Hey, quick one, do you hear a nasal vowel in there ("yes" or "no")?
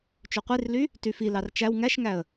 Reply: no